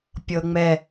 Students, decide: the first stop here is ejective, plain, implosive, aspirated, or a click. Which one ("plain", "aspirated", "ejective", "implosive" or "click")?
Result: plain